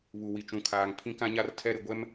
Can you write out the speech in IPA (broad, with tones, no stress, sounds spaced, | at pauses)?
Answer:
β u˨ w i˨ t͡ʃ ũ˨ kʰ aː˨ ŋ pʰ ĩ˦ k ã˦ ɲ a˦ r tʰ ɛ˦ ɾ ɪ˨ ɡʷ ɛ˦ m